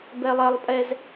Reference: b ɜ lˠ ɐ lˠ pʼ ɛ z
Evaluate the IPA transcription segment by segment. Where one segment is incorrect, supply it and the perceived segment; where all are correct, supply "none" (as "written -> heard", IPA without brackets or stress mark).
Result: ɜ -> ɛ